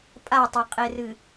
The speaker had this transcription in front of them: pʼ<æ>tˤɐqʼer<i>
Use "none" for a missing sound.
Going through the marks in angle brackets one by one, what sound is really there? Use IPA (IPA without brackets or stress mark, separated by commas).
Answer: a, ɨ